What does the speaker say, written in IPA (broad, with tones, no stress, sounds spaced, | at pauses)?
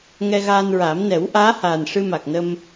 ŋ ɛ˧ ɣ aː˧ n ɹ a˨˩˦ m n ɛ˨˩˦ w ʔ aː˧˥ h aː˨˩ n ʂ ɨ˧ m a˨˩ k̚ n ə˧ m